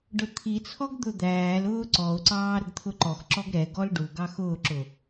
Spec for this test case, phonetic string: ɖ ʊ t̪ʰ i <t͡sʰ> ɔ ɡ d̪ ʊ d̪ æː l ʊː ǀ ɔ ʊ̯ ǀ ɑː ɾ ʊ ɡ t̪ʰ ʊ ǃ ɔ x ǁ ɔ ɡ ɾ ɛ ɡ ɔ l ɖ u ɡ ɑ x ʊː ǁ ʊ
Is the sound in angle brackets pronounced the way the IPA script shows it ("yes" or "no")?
yes